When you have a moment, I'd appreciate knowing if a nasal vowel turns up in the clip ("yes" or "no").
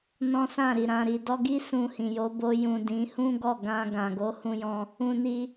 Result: yes